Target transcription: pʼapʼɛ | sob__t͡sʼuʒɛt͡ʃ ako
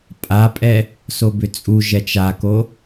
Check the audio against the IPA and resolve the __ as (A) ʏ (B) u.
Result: A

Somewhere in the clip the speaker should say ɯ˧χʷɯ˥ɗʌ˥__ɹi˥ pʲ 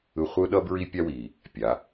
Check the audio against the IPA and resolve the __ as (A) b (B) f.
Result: A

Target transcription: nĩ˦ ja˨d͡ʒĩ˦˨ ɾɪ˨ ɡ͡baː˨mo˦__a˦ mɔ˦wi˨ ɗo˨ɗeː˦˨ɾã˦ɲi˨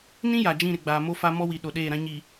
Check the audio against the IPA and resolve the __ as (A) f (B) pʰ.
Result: A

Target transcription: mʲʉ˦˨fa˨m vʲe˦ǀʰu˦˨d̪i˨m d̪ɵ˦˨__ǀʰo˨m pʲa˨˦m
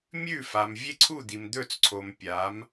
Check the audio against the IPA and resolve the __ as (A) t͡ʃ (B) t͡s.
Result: B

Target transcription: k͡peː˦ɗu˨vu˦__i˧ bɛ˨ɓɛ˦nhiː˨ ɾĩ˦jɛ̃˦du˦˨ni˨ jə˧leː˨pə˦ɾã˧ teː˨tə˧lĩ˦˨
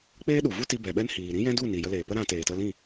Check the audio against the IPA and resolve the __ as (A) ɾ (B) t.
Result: B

